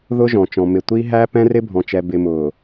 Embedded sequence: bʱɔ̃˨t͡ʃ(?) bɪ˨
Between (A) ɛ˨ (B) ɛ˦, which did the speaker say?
A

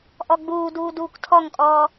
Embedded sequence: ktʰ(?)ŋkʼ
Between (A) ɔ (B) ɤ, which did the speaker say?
A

